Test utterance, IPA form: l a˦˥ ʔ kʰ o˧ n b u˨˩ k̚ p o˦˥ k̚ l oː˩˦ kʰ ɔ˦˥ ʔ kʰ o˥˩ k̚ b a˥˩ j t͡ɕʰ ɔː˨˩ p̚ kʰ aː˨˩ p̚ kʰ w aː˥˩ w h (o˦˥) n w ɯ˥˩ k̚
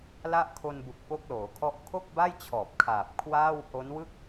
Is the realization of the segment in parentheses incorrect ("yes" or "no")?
no